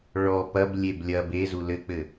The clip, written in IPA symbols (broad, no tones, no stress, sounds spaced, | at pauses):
ɭ ɔ p ɐ b lʲ e b lʲ ɐ b e z u l ɘ k͡p ɘ